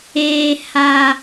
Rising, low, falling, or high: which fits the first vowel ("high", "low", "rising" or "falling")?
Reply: low